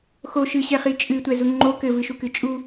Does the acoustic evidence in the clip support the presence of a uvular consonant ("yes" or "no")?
yes